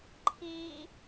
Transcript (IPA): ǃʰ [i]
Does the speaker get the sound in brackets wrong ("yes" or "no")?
yes